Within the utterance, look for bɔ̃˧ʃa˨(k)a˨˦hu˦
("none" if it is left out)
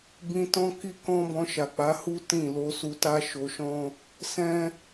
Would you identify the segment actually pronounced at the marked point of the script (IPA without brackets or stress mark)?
k͡p